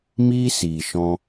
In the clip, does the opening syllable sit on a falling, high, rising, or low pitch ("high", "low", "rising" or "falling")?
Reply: high